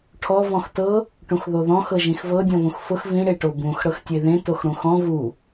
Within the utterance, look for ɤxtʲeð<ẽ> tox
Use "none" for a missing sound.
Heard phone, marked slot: ẽ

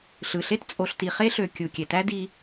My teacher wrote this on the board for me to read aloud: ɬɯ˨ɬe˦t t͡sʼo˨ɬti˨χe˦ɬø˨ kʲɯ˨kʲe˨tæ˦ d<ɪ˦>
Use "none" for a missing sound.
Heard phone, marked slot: i˦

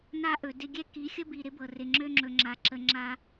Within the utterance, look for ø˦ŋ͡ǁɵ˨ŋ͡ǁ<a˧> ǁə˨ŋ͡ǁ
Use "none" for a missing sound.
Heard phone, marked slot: a˨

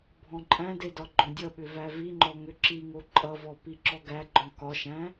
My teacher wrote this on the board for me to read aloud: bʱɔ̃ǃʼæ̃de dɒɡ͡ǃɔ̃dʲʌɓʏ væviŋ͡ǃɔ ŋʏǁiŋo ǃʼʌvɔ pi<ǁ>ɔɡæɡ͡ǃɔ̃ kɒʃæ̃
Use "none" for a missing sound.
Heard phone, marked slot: ǁ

